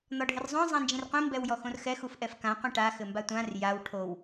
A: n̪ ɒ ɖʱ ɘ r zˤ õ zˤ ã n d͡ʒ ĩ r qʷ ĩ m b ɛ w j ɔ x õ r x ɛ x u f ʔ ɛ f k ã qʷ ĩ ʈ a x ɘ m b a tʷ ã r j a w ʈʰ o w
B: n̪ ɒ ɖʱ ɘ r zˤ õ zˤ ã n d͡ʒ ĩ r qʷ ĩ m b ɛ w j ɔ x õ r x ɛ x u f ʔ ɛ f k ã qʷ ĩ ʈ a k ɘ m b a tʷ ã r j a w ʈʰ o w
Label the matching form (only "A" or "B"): A